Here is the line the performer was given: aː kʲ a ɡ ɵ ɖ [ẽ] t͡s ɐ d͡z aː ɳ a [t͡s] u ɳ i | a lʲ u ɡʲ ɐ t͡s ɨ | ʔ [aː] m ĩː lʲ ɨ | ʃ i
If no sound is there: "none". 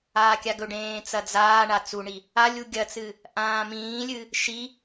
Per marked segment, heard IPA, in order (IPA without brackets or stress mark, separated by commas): ẽː, t͡s, ãː